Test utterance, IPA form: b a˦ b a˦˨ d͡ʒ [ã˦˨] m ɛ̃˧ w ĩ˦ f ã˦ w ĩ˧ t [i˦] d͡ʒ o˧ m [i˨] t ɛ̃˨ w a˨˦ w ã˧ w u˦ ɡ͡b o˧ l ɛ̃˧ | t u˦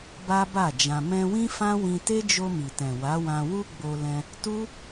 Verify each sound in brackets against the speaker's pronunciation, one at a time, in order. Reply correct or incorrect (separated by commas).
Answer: incorrect, incorrect, correct